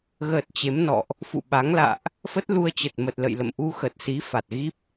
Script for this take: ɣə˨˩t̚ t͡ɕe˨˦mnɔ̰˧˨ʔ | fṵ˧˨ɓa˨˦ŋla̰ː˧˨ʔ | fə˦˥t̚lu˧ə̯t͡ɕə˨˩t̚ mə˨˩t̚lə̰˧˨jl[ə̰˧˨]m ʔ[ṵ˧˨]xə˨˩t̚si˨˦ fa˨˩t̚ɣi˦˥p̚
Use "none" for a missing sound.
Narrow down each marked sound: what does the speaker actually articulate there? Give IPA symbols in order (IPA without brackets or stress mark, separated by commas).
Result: ə̰˧˨, u˧